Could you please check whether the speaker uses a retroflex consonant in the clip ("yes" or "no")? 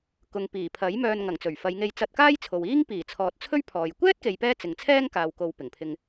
no